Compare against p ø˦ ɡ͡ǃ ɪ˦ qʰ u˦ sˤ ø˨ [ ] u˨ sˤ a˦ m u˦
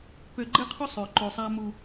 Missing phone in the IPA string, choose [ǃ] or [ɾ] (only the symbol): ǃ